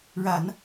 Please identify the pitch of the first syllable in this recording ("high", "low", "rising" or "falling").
low